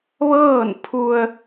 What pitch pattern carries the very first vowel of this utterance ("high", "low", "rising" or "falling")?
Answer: falling